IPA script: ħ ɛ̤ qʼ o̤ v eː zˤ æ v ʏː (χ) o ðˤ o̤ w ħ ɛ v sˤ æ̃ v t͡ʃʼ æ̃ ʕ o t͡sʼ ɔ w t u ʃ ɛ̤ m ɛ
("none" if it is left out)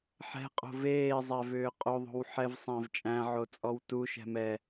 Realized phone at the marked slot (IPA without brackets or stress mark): qʼ